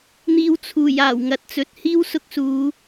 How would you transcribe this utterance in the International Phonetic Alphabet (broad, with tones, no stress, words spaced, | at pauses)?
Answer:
n̪iː˨w t͡sʰuː˨˩j aː˨˩wŋɐ˨t̚t͡sɵ˨˥t̚ hiː˥wsʊ˧k̚suː˨˧